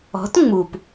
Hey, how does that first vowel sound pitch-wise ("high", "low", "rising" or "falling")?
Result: rising